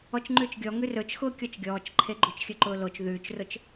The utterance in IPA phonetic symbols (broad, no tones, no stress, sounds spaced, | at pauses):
ɔ t͡ʃ ŋ͡ǃ ʉː t͡ʃ ɡʲ ɔ ŋ ʉ r ɵ t͡ʃ x ʊː kʲ ɔ t͡ʃ ɡʲ ɔː t͡ʃ ǃʰ e ɡ͡ǃ o t͡ʃ xʲ ɵ ǃ ʊː l o t͡ʃ ð ʉː t͡ʃ r ʊ t͡ʃ